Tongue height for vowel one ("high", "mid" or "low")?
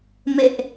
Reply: mid